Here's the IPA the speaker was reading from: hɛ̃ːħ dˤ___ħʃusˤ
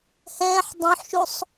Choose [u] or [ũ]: ũ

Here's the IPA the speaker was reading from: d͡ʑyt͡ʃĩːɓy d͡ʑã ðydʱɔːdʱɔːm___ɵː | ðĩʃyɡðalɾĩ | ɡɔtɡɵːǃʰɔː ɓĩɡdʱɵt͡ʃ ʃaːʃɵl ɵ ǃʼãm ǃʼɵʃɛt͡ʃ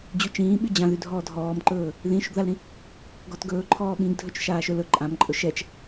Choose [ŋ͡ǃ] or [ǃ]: ǃ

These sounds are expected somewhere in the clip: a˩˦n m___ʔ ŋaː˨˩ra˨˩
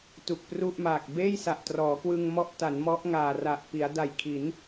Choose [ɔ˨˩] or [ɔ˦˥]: ɔ˦˥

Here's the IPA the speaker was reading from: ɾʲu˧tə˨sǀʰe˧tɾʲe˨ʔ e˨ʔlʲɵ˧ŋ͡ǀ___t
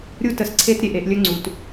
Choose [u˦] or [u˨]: u˨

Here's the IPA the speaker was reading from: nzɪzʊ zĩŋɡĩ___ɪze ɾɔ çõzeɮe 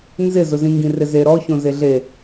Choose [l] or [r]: r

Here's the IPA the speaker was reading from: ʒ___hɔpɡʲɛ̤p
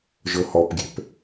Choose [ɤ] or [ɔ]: ɤ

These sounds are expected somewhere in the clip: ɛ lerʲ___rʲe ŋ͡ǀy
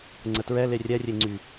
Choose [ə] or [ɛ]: ɛ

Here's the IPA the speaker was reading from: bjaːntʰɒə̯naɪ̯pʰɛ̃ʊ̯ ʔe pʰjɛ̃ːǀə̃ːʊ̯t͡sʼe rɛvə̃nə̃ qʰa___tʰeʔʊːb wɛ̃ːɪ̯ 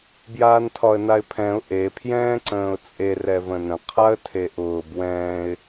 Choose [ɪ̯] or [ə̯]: ə̯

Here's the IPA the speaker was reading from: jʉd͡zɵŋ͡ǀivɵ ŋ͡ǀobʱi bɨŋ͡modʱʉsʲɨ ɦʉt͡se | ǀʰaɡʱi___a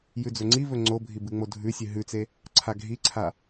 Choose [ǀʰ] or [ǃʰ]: ǀʰ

